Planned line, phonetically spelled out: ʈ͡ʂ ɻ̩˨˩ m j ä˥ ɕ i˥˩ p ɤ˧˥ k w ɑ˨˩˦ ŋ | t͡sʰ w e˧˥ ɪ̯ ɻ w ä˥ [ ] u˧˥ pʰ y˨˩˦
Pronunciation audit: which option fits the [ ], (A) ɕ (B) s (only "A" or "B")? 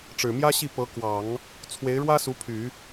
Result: B